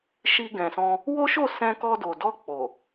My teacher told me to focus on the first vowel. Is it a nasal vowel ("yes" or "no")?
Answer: no